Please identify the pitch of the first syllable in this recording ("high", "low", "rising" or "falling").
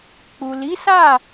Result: low